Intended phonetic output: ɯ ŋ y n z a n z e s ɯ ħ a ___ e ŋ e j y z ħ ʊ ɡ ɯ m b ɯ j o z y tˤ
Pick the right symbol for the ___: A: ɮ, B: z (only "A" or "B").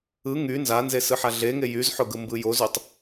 A